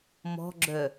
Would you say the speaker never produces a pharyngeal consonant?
yes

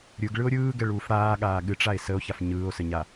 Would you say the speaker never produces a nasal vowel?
yes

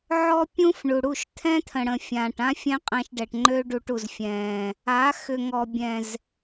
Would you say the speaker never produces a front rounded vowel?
no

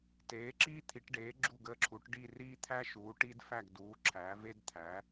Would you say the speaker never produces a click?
no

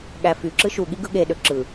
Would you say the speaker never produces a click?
no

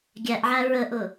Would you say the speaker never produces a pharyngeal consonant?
no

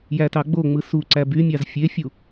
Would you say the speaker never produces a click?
no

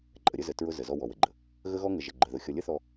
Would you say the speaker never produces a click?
no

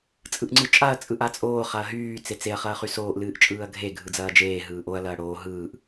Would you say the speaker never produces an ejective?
no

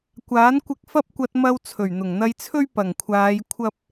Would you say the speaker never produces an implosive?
yes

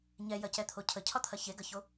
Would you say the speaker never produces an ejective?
yes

